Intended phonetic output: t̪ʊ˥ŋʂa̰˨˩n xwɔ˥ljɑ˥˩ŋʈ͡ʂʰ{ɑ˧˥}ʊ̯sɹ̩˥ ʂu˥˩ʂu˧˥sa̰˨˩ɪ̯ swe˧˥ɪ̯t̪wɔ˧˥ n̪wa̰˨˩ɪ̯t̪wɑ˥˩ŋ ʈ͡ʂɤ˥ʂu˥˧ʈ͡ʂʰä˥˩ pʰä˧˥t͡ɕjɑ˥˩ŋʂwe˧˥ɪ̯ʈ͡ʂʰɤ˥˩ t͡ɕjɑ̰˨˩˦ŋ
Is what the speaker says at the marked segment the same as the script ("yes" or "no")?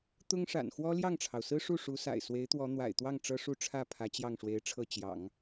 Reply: no